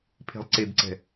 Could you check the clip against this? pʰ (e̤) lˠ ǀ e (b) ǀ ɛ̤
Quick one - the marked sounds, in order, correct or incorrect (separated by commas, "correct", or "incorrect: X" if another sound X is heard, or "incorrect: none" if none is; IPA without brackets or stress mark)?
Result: correct, correct